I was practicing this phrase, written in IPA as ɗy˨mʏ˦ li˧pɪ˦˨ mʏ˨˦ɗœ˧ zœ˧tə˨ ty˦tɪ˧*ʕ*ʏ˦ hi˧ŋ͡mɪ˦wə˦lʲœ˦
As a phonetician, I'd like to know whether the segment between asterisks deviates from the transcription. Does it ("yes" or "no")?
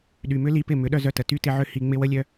no